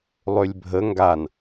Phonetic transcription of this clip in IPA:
lˠ ø lʲ bʱ ə ŋ ɡ a n

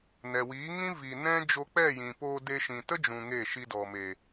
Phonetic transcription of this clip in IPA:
n ɛ˨ w iː˨˦ ŋ ĩ˦ v i˨ n ɛ̃˦ d͡ʒ o˧ k͡p ɛ˦˨ j ĩ˨ p oː˧ d e˧ ʃ ĩ˨ t ə˦ d͡ʒ ũ˨ ŋ e˦˨ ʃ i˧ d ɔ˨ m e˨

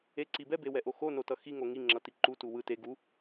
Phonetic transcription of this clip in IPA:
e ǀ i b ɛ b e w ɛ ʔ o x o n o t ʌ x i ŋ o ŋ i ŋ͡ǁ ʌ t i ǃ u t u w ɯ t e ɡ u

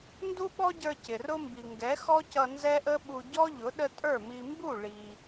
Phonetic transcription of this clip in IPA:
n d u˦ ɓ ɔ˦ ɟ ə˞˧ c ɪ˨ r ʊ˦ m b i˨ ŋ ɡ ɛ˨˦ x ɔ˦ c ʌ˧ n z ɛ˦ ʔ ə˦ ɓ u˧ ɟ ɔ˦ ʎ ʊ˨˦ ɗ ə˦ tʼ ə˞˦˨ m i˧ m b u˦˨ ɭ i˧

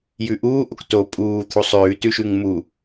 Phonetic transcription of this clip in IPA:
j ʉ ʔ uː ʔ o k t o pʼ uː t̪ʰ u sˤ ʉː t ʉ ʃ ʉ ŋ m u

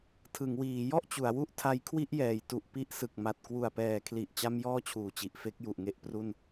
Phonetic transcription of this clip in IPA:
tʰ ɯ˩˦ ŋ w iː˩˦ j ɔ˥˩ ʔ t͡ɕ u˩˦ a̯ w u˦˥ ʔ tʰ a˦˥ j kʰ w i˥˩ ʔ j ɛː˩˦ j t u˨˩ ʔ p i˦˥ ʔ s ɯ˨˩ k̚ m a˨˩ t̚ k w u˨˩ a̯ p ɛː˨˩ kʰ l i˨˩ ʔ t͡ɕ a˧ m j ɔː˥˩ t͡ɕʰ uː˨˩ t͡ɕ i˨˩ ʔ f e˦˥ k̚ j u˨˩ ʔ ŋ e˦˥ ʔ p r u˥˩ n

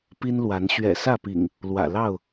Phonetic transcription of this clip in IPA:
p i˦ n l w a˨˦ n ɕ ɥ ɛ̰˨˩ s ä˥˨ p ḭ˨˩ ŋ | l w ä̰˨˩ l ɑ˥˨ ʊ̯

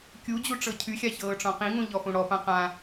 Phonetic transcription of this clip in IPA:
kʲ u d͡ʑ u ʈ͡ʂ ɤ cʰ y xʲ a ç ɤː ʈ͡ʂ ɔ̃ q ĩ ŋ ũ ʎ ɔ f ũ ɽ ɔ p ã q ã

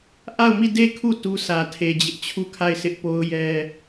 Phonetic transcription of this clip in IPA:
ʔ a˦˨ ʊ̯ m i˦˨ d e˦˨ kʰ u˦˨ t u˦ s ä˨ tʰ e˨ d͡ʑ ɪ˦ ʔ t͡ɕʰ u˦˨ kʰ a˦˨ ɪ̯ sʰ ɪ˦ ʔ p o˦ ʊ̯ j ɛ˦

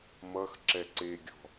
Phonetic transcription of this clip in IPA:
m ʌ x ǁ ɛ ǀ e ɡʲ ɔ̤

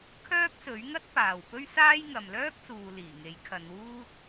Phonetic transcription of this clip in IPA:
kʰ œː˥ k̚ s ɵ˨˥ ɥ ŋ ɐ˥ t̚ p aː˨ w p ɵ˥ ɥ s aː˥ j ŋ ɐ˨ m l œː˥ k̚ s uː˨ l iː˨˩ ŋ e˨˥ j kʰ ɐ˨˧ n w uː˥ t̚

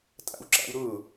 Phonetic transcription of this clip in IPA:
tʼ a̰ w ǁ a̰ w ɾ ʊ

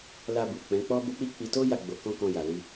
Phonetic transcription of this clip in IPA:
l a˧ b u˨ k͡p ɛ̃˨˦ k͡p ɔ˦ b o˦ k͡p i˦ k͡p i˧ t o˦ j a˦˨ ɡ͡b o˧ k ɔ̃˦ k ɔ̃˧ j a˨ l i˧

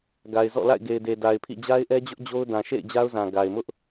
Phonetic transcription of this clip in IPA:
ɡ a˨ ɪ̯ z ɔ̰˦˨ l a̰˦˨ ɪ̯ ɡ e˨ ɪ̯ d e˨ d a˨ ɪ̯ pʰ ḭ˦˨ d͡ʑ a˦ ɪ̯ ʔ ɛ˦ d͡ʑ ʊ˦ ʔ d͡ʑ o˦ ʊ̯ d ã˨ ʃ ḛ˦˨ ɪ̯ d͡ʑ a˦ ʊ̯ z ã˨ ɡ a˨ ɪ̯ m ʊ˦ ʔ

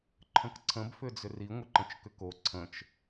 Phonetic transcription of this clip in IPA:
ǃʰ ə̃ k ǀʰ ə̃ b f ʏ d͡z ʏ r i ŋʷ ə ǃ ə̃ t͡ʃ k ʏ k o ǀʰ ə̃ t͡ʃ

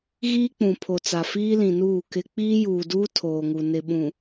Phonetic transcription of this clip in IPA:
ɣ iː˦ k͡p ũ˨ pʰ o˨ t͡s a˨ f iː˦ l ĩ˨ n uː˦˨ k ɪ˦ k͡p iː˦ j uː˨ d uː˦ tʰ oː˨ ŋ u˨ n ɪ˨ ɓ ũ˨

